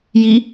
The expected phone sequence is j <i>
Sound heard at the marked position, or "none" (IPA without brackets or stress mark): i